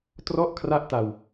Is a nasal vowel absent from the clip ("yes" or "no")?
yes